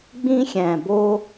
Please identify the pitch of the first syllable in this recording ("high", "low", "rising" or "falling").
high